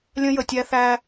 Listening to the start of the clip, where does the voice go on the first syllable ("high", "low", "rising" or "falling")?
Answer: high